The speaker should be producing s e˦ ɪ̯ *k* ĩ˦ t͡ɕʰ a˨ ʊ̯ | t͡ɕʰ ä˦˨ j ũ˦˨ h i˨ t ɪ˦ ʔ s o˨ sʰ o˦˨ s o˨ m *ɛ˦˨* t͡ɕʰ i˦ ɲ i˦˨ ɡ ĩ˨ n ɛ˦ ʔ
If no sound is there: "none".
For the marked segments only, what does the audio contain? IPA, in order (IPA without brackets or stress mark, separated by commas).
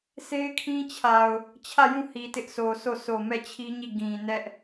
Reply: kʰ, ɛ˦˨